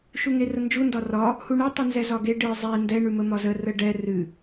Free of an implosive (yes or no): yes